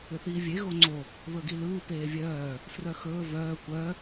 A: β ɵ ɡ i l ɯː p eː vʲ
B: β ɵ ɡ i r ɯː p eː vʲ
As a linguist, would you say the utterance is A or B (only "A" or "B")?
A